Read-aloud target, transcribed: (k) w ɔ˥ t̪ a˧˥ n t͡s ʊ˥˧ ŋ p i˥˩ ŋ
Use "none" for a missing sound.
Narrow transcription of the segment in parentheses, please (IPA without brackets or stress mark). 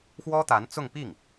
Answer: x